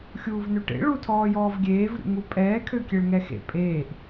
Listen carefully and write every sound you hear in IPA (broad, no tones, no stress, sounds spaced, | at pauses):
xʲ uː v n ø ʈ ḛ ɭ u tʰ ɔː j ɔː v ɡʲ eː v ɾʲ ṵ ŋ u pʼ ɛː kʰ ø kʲ e ɭ ŋ ɛ x ḛ pʼ eː ʔ